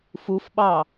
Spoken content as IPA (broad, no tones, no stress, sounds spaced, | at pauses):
f u f ɓ ɑ